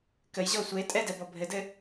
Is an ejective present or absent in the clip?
present